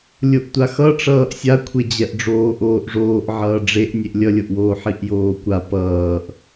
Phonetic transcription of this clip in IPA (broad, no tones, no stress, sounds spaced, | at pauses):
lʲ o ʔ tʷ a x ʌ ʈ͡ʂ ʌː ʔ sʲ a kʷʰ e d͡ʑ ɛ ʔ ɖ͡ʐ oː ʔ oː ʔ ʐ oː ʔ ʕ ʌː ɖ͡ʐ e ʔ nʲ e ʔ lʲ ʌ lʲ o ʔ w oː ħ i ʔ j oː kʷ a p ʌː ʔ